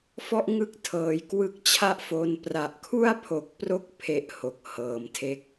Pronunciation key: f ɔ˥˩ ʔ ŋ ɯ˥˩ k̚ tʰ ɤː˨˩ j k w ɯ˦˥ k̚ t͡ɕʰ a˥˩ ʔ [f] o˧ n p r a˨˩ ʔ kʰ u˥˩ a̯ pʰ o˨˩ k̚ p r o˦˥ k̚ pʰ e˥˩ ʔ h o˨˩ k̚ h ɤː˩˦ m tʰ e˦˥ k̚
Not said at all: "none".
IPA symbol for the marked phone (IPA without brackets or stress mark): f